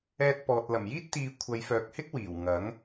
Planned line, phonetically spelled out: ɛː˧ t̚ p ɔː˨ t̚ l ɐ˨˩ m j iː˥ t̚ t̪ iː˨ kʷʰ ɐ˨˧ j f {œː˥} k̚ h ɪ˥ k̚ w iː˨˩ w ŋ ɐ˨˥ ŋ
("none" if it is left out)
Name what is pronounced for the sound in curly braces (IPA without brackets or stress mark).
œː˨